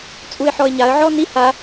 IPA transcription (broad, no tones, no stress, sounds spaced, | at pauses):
t͡sʼ u ɪ̯ ħ ɔ ɪ̯ ɲ a ə̯ ʕ ɔ n i h a